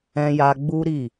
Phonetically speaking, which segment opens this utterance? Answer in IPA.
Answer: ɛ̃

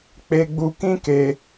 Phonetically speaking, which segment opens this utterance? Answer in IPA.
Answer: k͡p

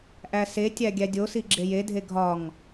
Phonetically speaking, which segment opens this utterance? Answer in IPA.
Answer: ʔ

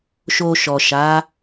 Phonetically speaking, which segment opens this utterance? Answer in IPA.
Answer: ʃ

